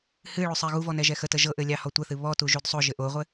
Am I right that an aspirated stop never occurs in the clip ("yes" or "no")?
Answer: yes